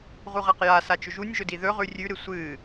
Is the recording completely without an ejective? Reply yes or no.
yes